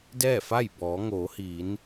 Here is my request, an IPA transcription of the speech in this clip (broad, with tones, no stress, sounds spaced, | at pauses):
d ɛː˥˨ f a˥˨ j b ɔː˩˧ ŋ oː˩˧ h iː˩˧ n